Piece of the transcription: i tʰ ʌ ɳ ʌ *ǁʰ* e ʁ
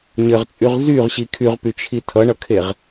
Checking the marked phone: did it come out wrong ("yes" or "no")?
yes